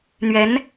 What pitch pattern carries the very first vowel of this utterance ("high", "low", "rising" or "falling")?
rising